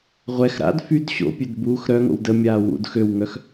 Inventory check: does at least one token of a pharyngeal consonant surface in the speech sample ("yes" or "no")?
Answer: no